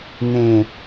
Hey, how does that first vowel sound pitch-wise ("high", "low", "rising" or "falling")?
low